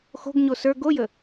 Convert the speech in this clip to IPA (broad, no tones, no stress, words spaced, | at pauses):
xo̤ɡɲo sə˞ ɡojə